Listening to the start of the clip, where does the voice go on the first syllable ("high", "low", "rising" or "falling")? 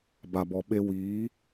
low